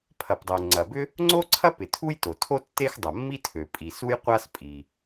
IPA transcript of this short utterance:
pʰɐ˩pdˤo˩ŋ͡ǀɐ˩bʏ˥ | ŋ͡ǀo˥ǀʰɐ˥pɪ˩ tʰu˥jto˩tʰo˥ tːe˥xdˤɐ˩mːi˥tʰø˩ pʼi˩su˥jqʷa˥s pʼi˩

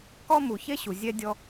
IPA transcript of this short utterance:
kɔ˦mu˨çe˦ ɕu˨zʲɛ˦dʲɔ˦

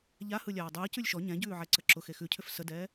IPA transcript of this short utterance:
ʎahɯlʲaː dˤɯː cʉlʲʃɔ ɲɛ̃ɟʉːʕɛ ǀəǁʊ xexʉcʰʏf sədɛː

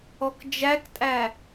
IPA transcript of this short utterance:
ɔkd͡ʒæktʼæ

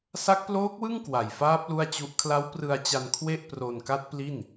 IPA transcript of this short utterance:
sa˦˥k̚ploː˦˥k̚wɯ˥˩ŋ kwa˨˩jfaː˦˥p̚ lu˥˩a̯t͡ɕu˦˥ʔ kʰla˦˥wprɯ˧a̯t͡ɕa˧n kʰwe˥˩ʔ pro˧nka˦˥t̚pli˥˩n

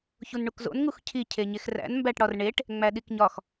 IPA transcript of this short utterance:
çunɳukzo̰n ŋuxcʰi cʰeɲexræ̰n mbæʈɽɒrɳeʈ | ŋ͡mæɗikɲɒx

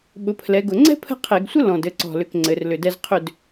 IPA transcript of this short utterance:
ɓʊ˨˦pʰlɛ˨˦ɡʊ˧˩˧ ŋ͡ǀɛ̤˥pʰə̤˥˨qʰe˧˩˧ɡsʷə˥ lɔ̃˧˩d ɘ˥˨ǀɔ̤˧˩lʏ˧˩k ŋ͡ǀɘ˨˦rlʏ˧˩dɛ˥z qʰʏ˥˨d

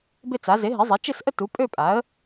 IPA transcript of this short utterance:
bɪ˥˧t͡sa˩˥ ze˩˥ ɦɪ˩˥zˤe˩˥ t͡ʃɪ˥˧sʔə˥˧ tu˩˥pʼø˥˧pʼa˩˥ə̯

